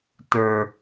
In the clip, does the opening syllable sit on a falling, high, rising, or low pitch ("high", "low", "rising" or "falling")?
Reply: low